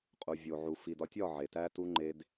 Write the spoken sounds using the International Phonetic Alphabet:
qʼu˨vʲo˨ʕu˨ fi˨dɒ˦tʲɒ˦˨ ʕe˨tæ˦tu˦ ŋ͡ǃe˦d

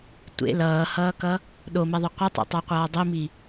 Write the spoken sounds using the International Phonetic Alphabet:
tʷḛ lʌːhʌːkʌ | ɗomeðˤo qʷʌtˤo̰tˤoqʷʌː dˤimi

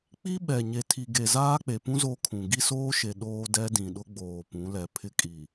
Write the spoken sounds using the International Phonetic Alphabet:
k͡pi˦ɓɛ˨ ɲe˨tʰi˨ɡe˨ zaː˦k͡pe˨pũ˦ zo˦kʰũ˨ ɡi˦soː˦ʃe˨ ɗoː˦dɛ˦dĩ˨ɗʊ˦ ɡ͡boː˨pũ˨˦lɛ˨ pʰɪ˦kʼi˨

